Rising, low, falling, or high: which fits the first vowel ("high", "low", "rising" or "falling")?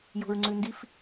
low